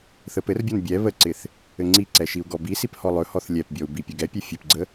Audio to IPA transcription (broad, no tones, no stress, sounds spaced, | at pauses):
θ ə p ɘ r bʲ ɔ n bʲ ɛ β ə ǀ ɪ θ | ɘ ŋ͡ǀ i ǀ ɛ ʃ i u̯ ɡ ɔ b i s i p h ɔ lˠ ɵ h ɔ θ lʲ ɛ p bʲ ɔ u̯ b i pʲ ɵ ɡ ɛ pʲ ɛ fʲ ɘ p ɡ͡ǀ ə